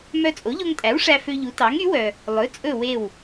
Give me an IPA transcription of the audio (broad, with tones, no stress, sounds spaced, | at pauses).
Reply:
m œ˧ t͡sʼ o˩˥ ʎ o˧ ŋ tʼ æ˩˥ w ʂ æ˧ f ø˧ ʎ u˩˥ t ɑ˩˥ ŋ y˩˥ w œ˩ | lˠ ɵ˩˥ t͡sʼ ɵ˥˩ w e˥˩ w